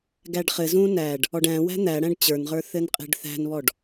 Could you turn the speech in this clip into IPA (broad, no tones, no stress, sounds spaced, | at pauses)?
ɡ æ ɖ χ ɘ z ũː n æ ɖ | ɔ ɖ æ̃ w æ̤ n̪ æ ɽ æ̃ ɖ t͡ɕ ə˞ n ʁ ə˞ θ ɘ n qʼ e̤ ɖ θ æ̤ n β ɔ ɖ